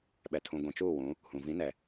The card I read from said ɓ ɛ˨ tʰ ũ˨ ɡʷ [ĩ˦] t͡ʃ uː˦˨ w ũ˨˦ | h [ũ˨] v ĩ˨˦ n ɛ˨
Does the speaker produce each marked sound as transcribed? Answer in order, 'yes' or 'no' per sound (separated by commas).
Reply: no, yes